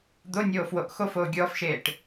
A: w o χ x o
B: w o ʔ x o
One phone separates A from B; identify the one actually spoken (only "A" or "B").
B